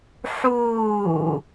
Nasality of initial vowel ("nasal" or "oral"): oral